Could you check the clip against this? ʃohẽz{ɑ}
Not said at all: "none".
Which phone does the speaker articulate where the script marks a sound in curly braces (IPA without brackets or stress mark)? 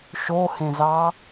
ɑ